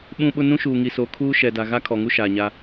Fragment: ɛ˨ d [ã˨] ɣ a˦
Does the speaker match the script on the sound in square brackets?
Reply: no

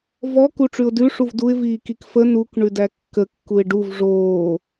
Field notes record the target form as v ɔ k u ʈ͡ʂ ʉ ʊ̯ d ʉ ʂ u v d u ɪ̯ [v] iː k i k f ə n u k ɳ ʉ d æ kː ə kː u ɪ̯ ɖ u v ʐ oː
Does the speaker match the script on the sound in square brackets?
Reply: yes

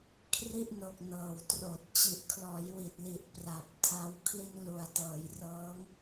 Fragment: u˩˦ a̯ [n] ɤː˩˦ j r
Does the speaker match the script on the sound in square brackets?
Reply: no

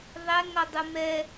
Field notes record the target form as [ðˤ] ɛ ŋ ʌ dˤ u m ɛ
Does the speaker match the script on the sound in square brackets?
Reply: yes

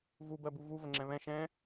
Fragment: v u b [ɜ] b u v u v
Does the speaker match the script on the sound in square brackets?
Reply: yes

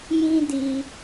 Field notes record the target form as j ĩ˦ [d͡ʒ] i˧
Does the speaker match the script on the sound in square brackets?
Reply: no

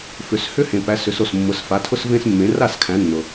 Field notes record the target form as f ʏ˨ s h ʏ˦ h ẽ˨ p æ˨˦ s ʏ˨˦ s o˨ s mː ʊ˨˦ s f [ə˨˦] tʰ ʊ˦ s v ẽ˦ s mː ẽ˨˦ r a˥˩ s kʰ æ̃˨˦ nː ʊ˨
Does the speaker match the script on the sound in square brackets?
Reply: no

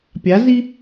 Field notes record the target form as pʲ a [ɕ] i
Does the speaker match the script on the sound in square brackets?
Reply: no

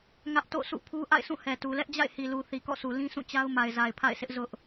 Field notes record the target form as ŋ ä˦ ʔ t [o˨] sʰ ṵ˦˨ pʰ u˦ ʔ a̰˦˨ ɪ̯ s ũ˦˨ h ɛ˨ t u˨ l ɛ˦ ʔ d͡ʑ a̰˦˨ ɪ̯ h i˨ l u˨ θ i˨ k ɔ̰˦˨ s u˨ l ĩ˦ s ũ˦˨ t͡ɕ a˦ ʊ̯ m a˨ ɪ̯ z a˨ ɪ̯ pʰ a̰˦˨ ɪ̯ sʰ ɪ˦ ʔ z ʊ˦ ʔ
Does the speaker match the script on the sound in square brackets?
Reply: no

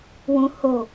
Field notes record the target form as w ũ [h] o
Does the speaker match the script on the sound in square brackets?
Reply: yes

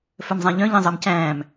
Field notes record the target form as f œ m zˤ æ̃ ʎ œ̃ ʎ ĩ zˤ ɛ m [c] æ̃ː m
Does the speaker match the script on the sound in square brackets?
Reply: yes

